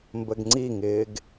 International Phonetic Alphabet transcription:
mbəɡŋ͡ǀiŋɪːɡ

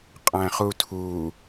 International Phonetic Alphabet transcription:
qʼæ̃χutʰu

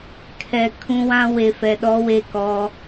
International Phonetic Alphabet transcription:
kʰɛ˨ kʰũ˦wã˦ we˨fɛ˨ɗɔ˦ we˦˨kɔ˦

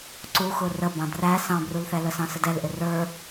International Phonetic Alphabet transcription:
ǀuxʊ rə bɑ̃dræ sɑ̃brulθɛlə sɑ̃sədɛlʔɪ rə˞

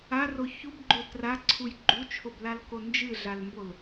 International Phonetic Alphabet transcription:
aro çubɡ͡ǃo traǀʰuj ɡ͡ǃut͡ʃʰoblalko nd͡ʒɨɮalmbol

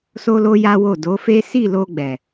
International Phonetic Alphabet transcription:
so˦lo˦ ja˦wo˦˨ do˨˦fe˦ si˦˨lo˧ɡ͡bɛ˨

